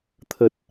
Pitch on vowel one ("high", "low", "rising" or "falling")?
low